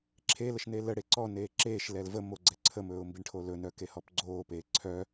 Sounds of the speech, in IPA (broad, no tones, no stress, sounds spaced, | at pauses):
ǁʰ e l ə ʃ n e l ə ɽ e ǀ ɔ n eː ǁ eː ʃ l ɛ l v ə m o ɡ͡ǀ ɛ ǀʰ ə m ɵː ʊ̯ m b i ɳ ʈʰ o l ɵ n œ k e h ɔ p ɡ͡ǀ oː p eː ǀʰ œ